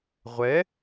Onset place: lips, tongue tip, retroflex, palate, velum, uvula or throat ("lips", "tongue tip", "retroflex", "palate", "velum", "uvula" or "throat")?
uvula